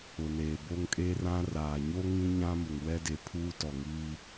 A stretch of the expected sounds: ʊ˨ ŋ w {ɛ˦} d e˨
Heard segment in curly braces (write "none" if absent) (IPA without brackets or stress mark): ɛ˦